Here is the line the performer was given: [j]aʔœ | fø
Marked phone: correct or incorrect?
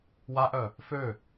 incorrect